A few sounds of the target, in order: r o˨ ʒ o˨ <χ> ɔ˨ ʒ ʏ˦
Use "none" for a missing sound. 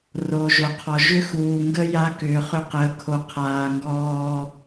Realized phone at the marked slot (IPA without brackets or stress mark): qʰ